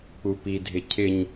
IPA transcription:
k͡p u p i dʱ ɪ cʰ ɪ ɲ

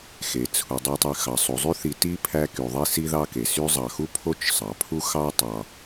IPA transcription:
x e˩ t͡sʰ u˩ dˤ y˨ tˤ y˨ x ɑ˩ sˤ u˩ zˤ y˥ θ i˨ t i˥ pʰ æ˦ k y˩ ðˤ i˦ s i˦ ð ɑ˦ k e˩ s y˦ zˤ ɑ˨ x u˥ pʰ o˥ t͡ʃ sˤ ɑ˩ pʰ u˥ x ɑ˥ tˤ ɑ˨

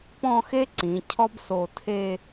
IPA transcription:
p ɔ̃˥˧ x e˥ ǀ ĩ˩˧ cʰ ɔ˥ b s o˧˩ tʰ e˥˧

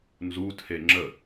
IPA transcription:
n z u tʰ e ŋ͡ǁ ə

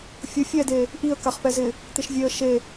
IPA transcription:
fʲ ʊ fʲ ɛ d e | ʔ i ə̯ k a χ p ɛ z ɪ | t̪ ɪ ʃ vʲ e ə̯ ʃ e

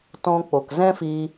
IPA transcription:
t ɔ̃˦ k͡p o˨ k z ɛ̃˦ f iː˧

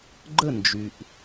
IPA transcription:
ɡ͡ǃ ə˥˩ n d͡ʒ y˩ ʔ

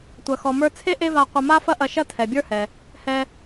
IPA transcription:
tʷ ɐ˩ x ɔ˩ m ə˞˧ t͡sʰ e˥ ʔ e˥ v a˧ qʷ ɐ˧ m a˥ f ɐ˥ ʔ ɐ˧ ʃ ɐ˥ tʰ ɛ˩ bʲ ə˞˥ h ɛ˩ | h ɛ˧

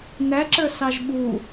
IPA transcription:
n æ ǁ ə˞ s ɑ ʒ ɓ u

